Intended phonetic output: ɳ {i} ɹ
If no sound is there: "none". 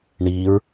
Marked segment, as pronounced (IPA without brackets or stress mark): i